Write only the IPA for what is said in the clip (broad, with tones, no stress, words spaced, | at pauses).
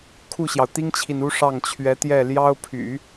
kʰu˥˩ɕjɑ˩ʊ̯t̪i˥ŋt͡ɕʰi˨n u˥ʂɑ˥˩ŋt͡ɕʰɥɛ˧˥t̪jɛ˥˩ ljɑ˥ʊ̯ pʰy̰˨˩˦